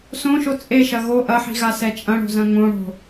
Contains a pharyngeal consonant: yes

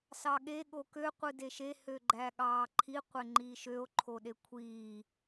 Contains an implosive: yes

